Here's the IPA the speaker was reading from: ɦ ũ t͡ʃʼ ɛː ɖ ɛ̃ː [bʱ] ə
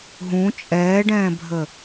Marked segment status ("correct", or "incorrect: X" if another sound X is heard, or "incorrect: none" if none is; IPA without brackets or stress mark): correct